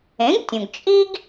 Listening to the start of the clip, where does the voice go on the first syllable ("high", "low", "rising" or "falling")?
rising